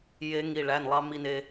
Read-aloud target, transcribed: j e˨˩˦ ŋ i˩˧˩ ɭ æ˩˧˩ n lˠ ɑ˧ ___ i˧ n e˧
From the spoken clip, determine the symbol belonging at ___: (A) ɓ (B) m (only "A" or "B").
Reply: B